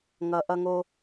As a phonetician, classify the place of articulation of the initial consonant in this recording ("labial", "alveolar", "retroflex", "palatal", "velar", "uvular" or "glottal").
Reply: velar